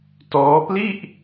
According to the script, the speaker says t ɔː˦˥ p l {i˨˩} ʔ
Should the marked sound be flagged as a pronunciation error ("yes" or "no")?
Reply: yes